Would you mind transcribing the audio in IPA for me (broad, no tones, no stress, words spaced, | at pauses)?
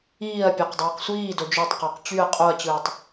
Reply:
iːɐ̯ pʲɑqdˤeːqsʷiːdo d͡ʒøtˤqɑq t͡ɕyɐ̯ qʼoɐ̯t͡ɕɯːtˤ